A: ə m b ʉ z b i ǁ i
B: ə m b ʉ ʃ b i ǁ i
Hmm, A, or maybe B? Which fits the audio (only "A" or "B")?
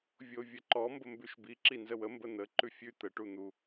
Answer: B